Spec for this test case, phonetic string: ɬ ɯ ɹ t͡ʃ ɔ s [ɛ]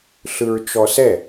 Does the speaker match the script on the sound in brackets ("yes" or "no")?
yes